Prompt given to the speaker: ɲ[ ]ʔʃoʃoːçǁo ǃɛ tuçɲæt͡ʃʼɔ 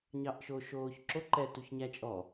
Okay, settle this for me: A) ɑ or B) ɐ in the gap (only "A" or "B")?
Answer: A